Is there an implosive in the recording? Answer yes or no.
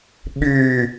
yes